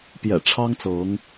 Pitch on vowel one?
low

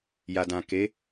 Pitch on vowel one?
low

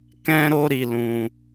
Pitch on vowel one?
high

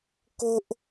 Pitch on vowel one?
high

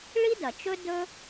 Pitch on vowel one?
high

